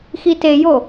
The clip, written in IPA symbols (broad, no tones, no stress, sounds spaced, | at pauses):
x i t e j o